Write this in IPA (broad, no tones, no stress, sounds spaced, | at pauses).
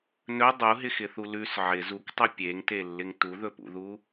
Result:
n ɵ dˤ u ɦ ɪ x ɪ θ u l ʉ s ʕ ɪ z u k tˤ ʉ pʲ e ŋ t e lː ɪ ŋ t u ð ɵ p ṵ ð u